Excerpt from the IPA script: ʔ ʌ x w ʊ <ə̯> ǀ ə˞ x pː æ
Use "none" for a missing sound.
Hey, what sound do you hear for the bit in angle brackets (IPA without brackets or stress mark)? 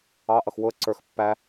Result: ə̯